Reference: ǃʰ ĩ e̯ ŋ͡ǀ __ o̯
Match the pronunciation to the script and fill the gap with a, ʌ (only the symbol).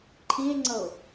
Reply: ʌ